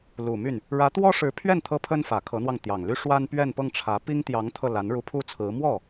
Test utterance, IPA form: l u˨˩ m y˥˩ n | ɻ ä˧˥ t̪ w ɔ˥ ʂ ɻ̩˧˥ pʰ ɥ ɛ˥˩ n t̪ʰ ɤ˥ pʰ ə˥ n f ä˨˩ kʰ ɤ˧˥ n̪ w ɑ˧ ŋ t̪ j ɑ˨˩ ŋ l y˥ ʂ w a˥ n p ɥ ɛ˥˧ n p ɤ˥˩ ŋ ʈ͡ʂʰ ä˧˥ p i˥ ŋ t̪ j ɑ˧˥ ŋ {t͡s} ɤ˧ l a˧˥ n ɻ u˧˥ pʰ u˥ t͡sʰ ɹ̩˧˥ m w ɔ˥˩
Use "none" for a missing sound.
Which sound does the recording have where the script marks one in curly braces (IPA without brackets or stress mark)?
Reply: t̪ʰ